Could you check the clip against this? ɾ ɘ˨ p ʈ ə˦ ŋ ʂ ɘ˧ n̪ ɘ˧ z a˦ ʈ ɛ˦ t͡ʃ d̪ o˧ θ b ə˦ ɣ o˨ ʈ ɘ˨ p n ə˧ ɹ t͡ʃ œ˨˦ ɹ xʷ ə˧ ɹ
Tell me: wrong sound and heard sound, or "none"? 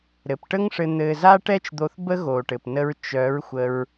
none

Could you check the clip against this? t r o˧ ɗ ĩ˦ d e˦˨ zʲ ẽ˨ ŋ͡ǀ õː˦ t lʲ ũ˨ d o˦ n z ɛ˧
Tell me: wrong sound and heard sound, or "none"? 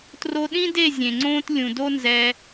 none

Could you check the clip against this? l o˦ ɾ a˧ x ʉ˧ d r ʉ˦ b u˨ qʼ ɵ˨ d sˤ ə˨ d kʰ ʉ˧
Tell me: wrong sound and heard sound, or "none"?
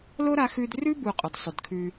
ə˨ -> ɵ˨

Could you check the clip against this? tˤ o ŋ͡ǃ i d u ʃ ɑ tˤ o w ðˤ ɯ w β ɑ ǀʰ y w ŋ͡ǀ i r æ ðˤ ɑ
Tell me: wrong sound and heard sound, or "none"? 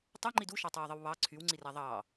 none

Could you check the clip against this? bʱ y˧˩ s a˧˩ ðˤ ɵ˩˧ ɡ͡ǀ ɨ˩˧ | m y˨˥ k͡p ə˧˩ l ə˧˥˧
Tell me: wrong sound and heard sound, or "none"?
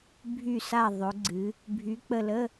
m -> bʱ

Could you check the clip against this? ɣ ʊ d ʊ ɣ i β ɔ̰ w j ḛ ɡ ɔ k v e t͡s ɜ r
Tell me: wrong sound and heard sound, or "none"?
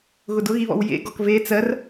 none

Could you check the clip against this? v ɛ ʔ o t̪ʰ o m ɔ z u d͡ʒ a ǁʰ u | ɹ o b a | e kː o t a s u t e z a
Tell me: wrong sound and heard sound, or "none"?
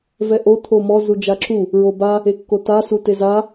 none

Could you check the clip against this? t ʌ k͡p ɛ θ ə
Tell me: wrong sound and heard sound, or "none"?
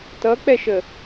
θ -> ʃ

